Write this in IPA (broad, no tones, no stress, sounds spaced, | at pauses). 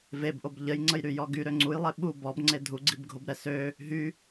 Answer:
v e b ʔ o b ʎ ə j ŋ͡ǀ ə j ɾ y j ɔ ɡ y ɾ ø ŋ͡ǀ u j lˠ e ɓ u b ɔ b ŋ͡ǀ e dʱ u ɡ͡ǀ i b ɡʱ o b ɾ ɛ s ø | ɦ y